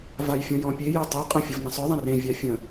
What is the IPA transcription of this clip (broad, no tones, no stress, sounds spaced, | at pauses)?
v a j fʲ ɔ̃ j ɔ̃ pʲ e j ɛ tˤ œ qʼ ə̃ fʲ ə v n ə̃ sˤ œ ðˤ ə̃ r ẽ vʲ a fʲ ə̃